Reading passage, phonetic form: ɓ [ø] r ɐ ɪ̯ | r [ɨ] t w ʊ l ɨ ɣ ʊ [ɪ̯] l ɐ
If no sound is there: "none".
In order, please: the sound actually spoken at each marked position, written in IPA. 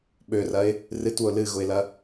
ø, ɨ, ɪ̯

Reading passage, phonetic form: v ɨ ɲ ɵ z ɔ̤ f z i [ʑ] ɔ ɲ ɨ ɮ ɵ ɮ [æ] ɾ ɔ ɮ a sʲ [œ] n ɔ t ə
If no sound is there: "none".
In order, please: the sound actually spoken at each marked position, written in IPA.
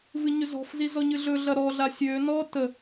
z, ɐ, ø

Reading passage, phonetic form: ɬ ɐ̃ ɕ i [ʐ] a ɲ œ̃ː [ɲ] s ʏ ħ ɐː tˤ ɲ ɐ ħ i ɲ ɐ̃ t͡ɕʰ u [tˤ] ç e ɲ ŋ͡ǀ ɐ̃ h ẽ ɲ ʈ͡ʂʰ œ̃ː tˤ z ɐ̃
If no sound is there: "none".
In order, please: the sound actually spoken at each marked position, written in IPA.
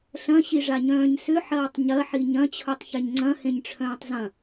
ʐ, ɲ, tˤ

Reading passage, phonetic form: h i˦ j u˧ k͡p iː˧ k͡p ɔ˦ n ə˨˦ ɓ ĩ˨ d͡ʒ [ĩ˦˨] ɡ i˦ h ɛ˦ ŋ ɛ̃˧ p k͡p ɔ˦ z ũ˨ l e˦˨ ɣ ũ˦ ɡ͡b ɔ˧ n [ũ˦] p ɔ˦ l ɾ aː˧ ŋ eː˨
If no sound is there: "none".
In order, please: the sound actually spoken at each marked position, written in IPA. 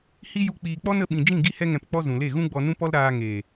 ĩ˦˨, ũ˦

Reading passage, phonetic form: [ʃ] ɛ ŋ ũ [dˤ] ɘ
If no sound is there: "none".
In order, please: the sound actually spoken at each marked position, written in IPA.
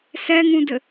s, d

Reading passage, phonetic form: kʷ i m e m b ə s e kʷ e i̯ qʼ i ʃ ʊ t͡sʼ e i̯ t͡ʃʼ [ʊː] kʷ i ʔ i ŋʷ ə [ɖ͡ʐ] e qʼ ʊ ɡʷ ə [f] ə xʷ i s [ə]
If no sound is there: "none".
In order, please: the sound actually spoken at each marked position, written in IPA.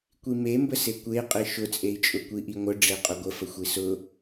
ʊ, ɖ͡ʐ, f, ʊ

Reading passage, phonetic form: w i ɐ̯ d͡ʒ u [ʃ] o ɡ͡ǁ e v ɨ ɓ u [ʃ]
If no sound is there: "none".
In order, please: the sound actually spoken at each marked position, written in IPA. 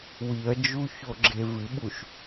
ç, ʃ

